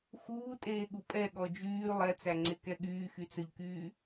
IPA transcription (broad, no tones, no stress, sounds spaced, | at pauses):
x uː tʼ eː ɠ u pʼ ɛ ɠ ɔ d͡ʒ yː lˠ ɛ t͡s æ ŋ͡ǀ e k ɛ ɠ yː x y t͡s œ ʎ k yː